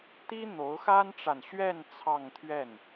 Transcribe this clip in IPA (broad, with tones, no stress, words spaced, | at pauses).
t̪i˥ n̪o˧˥ʊ̯xa˥nʈ͡ʂa˨nɕɥɛ˥˧n t͡sʰɑ˥˧ŋt̪ʰɥɛ˥˩n